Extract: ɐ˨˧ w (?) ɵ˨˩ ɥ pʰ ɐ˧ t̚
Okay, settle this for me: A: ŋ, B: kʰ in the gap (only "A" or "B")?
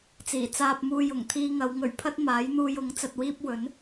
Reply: A